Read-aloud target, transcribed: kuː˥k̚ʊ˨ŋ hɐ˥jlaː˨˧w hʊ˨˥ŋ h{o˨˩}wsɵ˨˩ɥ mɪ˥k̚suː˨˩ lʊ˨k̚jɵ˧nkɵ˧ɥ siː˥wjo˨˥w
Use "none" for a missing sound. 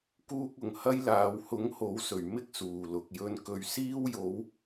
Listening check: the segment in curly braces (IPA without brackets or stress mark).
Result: o˨˥